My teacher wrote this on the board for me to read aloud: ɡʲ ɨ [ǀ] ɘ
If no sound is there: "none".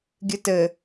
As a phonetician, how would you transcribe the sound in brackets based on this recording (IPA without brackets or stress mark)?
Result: t